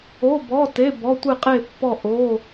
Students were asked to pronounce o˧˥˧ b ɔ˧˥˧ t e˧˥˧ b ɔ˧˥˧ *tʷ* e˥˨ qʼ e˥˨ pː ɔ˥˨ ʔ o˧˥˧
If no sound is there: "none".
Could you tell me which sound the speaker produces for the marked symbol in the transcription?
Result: tʷ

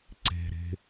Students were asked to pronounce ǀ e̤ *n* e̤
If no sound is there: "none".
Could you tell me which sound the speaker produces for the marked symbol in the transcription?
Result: ɾ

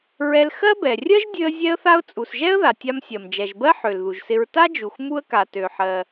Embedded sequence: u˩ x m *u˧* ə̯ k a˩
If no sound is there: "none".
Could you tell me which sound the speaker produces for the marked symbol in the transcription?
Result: u˧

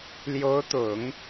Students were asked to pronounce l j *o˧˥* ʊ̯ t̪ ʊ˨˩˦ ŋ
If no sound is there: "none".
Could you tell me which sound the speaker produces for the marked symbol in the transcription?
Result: o˧˥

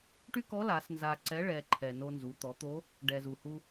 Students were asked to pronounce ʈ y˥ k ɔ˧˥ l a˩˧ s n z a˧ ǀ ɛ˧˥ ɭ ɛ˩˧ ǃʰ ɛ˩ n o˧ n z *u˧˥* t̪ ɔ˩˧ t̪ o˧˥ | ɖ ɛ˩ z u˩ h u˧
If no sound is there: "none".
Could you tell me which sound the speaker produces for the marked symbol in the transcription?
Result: u˩˧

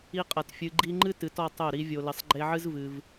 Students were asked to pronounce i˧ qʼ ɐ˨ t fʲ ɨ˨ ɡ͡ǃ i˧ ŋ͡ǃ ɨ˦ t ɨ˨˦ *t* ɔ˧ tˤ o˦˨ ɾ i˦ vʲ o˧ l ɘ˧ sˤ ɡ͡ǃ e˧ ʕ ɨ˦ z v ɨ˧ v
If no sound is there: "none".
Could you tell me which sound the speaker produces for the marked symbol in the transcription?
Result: t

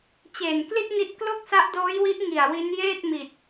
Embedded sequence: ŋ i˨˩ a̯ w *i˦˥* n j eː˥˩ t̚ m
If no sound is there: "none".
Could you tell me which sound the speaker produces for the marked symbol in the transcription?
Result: i˦˥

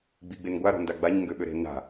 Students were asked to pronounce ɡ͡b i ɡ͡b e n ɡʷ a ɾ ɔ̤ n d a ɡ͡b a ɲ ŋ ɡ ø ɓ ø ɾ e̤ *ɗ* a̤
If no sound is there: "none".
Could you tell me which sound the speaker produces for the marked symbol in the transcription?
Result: n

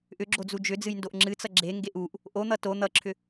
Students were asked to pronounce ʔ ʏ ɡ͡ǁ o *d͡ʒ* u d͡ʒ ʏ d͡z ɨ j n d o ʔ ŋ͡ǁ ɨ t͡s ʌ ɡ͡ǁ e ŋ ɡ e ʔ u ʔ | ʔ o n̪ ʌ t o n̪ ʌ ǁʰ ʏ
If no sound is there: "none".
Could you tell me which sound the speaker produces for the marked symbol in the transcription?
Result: d͡z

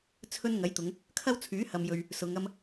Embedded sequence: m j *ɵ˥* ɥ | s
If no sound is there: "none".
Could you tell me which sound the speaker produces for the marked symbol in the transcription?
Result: ɵ˧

